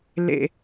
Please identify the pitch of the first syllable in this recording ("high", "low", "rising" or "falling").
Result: high